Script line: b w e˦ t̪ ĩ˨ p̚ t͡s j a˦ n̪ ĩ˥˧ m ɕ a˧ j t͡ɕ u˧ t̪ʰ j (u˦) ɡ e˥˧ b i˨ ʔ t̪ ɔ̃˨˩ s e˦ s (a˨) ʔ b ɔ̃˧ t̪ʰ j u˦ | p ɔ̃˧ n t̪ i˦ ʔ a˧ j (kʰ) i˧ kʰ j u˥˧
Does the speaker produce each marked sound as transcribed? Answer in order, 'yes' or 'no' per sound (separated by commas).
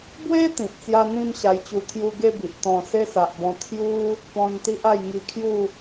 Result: no, yes, no